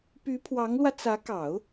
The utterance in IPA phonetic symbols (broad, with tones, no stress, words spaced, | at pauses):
py˧˥pʰwɑ˧˥ŋlwä˧ t͡sä˧˥kɑ˨˩˦ʊ̯